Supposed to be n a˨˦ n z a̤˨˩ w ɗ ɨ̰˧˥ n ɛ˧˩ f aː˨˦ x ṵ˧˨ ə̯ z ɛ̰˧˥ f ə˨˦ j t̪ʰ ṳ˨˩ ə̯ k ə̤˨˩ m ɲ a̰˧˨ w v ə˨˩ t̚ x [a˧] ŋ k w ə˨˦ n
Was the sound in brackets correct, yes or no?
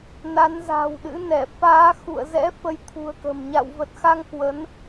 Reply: yes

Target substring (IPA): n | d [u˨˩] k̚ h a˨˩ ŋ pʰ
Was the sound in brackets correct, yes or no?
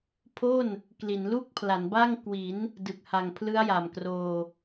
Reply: no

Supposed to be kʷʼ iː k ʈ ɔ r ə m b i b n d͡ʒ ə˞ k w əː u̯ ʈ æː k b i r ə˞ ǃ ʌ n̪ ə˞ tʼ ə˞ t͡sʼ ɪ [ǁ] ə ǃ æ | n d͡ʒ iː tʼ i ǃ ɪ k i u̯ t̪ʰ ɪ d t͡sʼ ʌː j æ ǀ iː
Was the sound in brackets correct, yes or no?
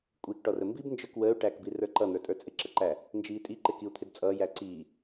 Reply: yes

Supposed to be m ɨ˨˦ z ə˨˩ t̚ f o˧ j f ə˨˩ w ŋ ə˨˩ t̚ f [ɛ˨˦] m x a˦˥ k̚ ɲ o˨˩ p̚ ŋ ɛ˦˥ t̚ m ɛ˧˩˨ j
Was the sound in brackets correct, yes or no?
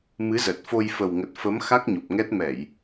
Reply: no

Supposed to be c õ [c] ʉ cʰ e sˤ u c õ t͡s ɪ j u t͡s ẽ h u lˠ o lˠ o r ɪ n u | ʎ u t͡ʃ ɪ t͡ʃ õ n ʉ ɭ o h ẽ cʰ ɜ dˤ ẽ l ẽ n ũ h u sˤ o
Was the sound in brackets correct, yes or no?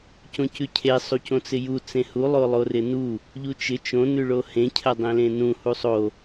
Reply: yes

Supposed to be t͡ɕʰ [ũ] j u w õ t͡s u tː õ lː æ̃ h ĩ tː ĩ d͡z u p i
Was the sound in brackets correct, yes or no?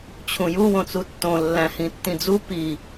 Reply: yes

